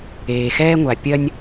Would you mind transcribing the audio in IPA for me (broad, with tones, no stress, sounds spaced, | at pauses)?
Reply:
eː˨ x ɛː˦ ŋʷ a˨ pʲ ɐ˦ nʲ